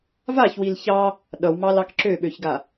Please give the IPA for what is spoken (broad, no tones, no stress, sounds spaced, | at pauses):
v a ç w i l ç ɑ | ɗ ʌ w m ɑ l ɑ k ǁ ø ɓ ø ç ɡ a